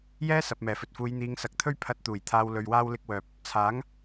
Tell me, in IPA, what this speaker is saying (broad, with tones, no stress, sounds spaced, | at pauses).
j ɛː˥ s ɐ˨ p̚ m ɛː˨˩ f ɵ˨ t̚ f uː˨˧ j n̪ iː˨˧ ŋ s ɐ˨ k̚ t̪ʰ ɵ˥ ɥ pʰ ɐ˧ t̚ t̪ uː˨˩ j t̪ʰ aː˧ w l ɵ˧ ɥ w aː˥ w l ɪ˥ k̚ w œː˧ p̚ | t͡sʰ aː˨˥ ŋ